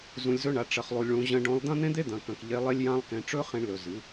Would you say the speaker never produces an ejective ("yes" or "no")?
yes